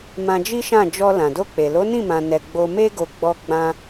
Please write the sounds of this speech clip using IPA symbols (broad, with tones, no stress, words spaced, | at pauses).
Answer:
mã˧d͡ʒi˦ʃã˦˨ d͡ʒɔ˧ lã˨do˧k͡pe˨ lo˨˦nĩ˦˨mã˨nɛ˨ ɡ͡bo˧me˦ɡo˧ ɡ͡bɔ˧ɡ͡bã˧